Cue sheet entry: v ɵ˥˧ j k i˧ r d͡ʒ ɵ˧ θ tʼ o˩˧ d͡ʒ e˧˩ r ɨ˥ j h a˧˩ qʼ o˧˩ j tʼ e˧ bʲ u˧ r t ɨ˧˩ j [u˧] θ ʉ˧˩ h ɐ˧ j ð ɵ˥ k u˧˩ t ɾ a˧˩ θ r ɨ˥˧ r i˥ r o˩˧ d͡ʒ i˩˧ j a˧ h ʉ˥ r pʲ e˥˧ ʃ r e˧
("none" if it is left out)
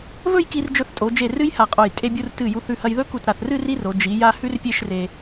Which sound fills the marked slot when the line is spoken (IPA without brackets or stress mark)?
u˧